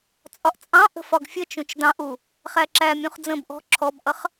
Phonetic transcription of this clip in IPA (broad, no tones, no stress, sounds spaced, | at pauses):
t͡sʼ ɒ ʔ t͡sʼ ɑ̃ ʔ ə̤ f ɒ ɡ fʲ ə t͡ʃ ũ t͡ʃ d ɑ̃ ʔ u | χ æ ǁ æ mʲ ũ χ d͡z ə̃ b ʔ ɔ̤ ǁʰ ɔ b ʔ ʌ χ